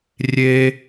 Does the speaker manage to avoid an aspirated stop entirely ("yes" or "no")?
yes